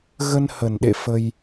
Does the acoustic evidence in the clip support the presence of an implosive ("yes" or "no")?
yes